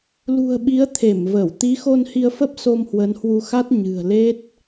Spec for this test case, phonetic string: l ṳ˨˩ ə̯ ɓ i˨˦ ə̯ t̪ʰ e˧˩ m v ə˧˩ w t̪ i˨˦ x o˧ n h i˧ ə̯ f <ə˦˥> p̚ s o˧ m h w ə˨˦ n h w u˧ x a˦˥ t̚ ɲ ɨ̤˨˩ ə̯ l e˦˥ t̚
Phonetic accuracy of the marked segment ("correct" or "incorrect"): correct